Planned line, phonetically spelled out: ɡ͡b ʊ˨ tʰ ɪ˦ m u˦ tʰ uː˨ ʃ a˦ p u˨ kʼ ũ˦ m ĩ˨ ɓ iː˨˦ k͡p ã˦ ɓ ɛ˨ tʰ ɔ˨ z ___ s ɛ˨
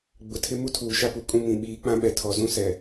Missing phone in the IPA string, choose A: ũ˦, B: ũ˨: A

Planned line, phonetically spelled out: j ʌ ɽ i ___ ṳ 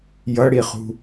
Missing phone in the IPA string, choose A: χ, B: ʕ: A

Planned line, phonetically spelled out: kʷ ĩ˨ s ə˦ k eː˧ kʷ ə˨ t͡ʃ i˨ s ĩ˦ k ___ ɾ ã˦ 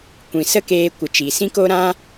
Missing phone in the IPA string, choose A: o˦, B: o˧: A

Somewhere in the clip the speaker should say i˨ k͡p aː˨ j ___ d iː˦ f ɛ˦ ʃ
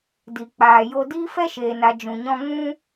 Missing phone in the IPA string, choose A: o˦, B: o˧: B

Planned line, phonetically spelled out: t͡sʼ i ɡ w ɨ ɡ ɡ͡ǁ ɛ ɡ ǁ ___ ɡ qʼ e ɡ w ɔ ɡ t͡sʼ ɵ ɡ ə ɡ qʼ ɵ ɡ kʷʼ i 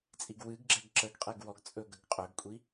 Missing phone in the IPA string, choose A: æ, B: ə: B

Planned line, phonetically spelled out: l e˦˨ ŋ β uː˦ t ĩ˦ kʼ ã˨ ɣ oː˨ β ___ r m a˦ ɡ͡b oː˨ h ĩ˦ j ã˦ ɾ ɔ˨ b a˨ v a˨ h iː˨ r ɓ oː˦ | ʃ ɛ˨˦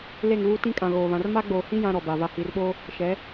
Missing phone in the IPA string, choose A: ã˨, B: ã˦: A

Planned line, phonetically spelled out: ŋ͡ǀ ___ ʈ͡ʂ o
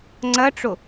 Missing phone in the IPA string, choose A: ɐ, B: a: A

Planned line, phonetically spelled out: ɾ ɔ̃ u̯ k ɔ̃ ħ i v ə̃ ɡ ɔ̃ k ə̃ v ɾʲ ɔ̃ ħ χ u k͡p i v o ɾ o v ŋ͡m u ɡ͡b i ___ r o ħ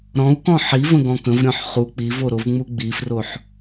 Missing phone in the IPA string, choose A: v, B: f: B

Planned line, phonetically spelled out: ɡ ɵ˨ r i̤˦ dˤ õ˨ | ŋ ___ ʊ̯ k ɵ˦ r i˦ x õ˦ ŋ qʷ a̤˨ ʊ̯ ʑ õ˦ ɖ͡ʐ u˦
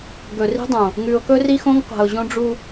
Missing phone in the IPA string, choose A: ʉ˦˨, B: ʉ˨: B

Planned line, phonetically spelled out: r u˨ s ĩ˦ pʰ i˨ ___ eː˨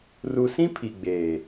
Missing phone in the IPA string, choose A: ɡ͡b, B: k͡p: A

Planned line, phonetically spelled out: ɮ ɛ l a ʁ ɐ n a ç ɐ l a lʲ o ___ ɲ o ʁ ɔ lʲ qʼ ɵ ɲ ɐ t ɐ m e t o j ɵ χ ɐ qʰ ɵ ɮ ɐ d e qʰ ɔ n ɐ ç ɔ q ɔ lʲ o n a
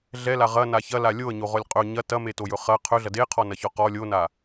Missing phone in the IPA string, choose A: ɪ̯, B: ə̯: B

